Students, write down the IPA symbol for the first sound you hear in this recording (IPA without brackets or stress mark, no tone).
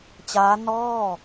t͡ɕ